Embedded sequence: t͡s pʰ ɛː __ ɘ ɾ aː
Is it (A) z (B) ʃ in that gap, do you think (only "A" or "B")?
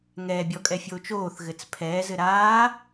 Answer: A